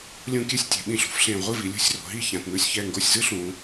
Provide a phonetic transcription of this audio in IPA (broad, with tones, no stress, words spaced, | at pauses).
lʲũ˧kʲɛ˧sʲtʲe̤˩˧ ɓĩ˧˩ɬṳ˩˧fɬẽ˧˩ ʁʷɯ˥˧vi˩˧lʲṳ˥˧sʲro̤˩˧ ɦi˥çã˩˧tnu˥˧sʲ çɛ˧˩ŋɡo˧˩sʲ zɯ˥ɬũ˩˧